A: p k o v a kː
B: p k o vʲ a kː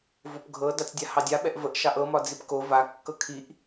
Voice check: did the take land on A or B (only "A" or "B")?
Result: A